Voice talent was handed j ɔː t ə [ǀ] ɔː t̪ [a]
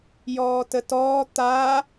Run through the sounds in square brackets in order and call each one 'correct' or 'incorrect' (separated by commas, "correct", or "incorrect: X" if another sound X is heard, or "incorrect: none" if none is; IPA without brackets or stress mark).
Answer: incorrect: t, correct